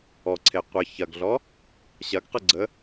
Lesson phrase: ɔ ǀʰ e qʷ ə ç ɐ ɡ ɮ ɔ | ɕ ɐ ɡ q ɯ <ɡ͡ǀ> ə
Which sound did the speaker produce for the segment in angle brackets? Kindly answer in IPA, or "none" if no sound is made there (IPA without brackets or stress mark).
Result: ɡ͡ǀ